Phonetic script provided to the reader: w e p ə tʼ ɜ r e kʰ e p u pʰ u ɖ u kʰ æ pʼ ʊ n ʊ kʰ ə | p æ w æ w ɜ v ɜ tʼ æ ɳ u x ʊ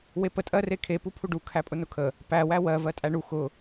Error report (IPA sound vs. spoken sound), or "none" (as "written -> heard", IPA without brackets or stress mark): none